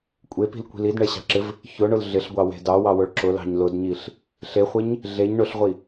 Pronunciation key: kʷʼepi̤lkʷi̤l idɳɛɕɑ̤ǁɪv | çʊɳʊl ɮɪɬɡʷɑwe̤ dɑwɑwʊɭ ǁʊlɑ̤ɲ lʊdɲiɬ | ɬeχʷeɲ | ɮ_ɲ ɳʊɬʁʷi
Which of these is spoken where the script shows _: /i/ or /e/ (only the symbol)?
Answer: e